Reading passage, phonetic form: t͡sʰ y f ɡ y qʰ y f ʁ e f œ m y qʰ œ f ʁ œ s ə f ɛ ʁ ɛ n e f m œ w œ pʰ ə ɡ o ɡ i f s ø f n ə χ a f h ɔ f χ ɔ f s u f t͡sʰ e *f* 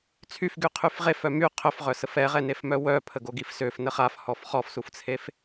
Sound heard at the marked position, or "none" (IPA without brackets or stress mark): f